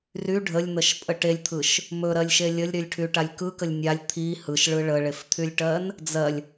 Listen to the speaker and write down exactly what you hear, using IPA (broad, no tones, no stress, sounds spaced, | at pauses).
r y ɖʱ ə lʲ n̪ ə ʃ pʼ ə ʈ e lʲ t̪ʰ ɯ ʃ | m ɵ ɾ ɜ lʲ ʃ e lʲ ə lʲ ɾ y lʲ ʈʰ y ʈ a lʲ k ɯ k ə lʲ nʲ a lʲ t̪ʰ i h ɯ ʃ ɭ ɯ ɭ ə ɭ e f t̪ʰ y lʲ ʈ ɜ n | d͡z ɜ lʲ